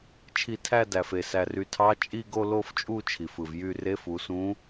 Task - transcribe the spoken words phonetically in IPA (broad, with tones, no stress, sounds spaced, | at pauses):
t͡ʃʰ i˧˩ tʰ æ˥˧ d æ˩ f e˩ s æ˩ r y˩˧ tʰ ɑ˧˥ t͡ʃʼ i˥˧ ɡ o˥˧ l o˥˧ f t͡ʃʼ u˥˧ t͡ʃʰ i˩ f ɯ˩ v j y˥˧ r e˧˥ f u˩˧ s ũ˧˥